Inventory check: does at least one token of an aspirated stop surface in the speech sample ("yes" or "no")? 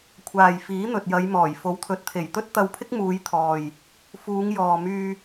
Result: yes